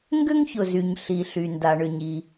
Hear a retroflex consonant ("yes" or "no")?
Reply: yes